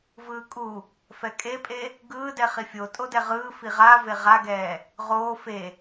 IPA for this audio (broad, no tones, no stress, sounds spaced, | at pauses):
v ɯː kʼ u | f ɛ kʼ e pʼ e | ɡ ɯː d ɛ χ i fʲ o tʼ o d ɛ ʁ ɯː f i ʁ a v e ʁ a ɡ ɛː | ʁ oː f e